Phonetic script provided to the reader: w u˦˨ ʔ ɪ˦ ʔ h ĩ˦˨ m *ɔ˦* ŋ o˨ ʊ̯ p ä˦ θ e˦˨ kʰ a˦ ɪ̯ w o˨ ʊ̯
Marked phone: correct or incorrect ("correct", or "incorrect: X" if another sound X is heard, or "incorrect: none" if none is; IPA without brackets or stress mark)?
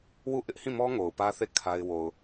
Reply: correct